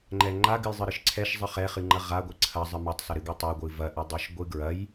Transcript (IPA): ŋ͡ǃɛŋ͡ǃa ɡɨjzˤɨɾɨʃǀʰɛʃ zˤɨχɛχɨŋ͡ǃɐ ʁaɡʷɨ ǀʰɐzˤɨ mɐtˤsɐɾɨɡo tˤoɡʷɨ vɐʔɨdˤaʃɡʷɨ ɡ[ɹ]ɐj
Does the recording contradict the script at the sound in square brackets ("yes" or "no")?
no